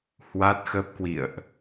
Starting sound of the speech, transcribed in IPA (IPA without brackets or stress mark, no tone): h